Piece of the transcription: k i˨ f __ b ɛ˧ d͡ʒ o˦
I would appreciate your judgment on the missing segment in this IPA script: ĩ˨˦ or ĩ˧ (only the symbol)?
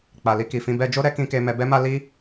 ĩ˧